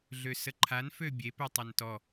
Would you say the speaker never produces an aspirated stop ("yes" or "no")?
no